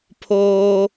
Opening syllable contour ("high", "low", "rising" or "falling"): high